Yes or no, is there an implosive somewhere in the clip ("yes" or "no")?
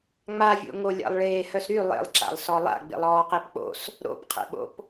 yes